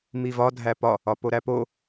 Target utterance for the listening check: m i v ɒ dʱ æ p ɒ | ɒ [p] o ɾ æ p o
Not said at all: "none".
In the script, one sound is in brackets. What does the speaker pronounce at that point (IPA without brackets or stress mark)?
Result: p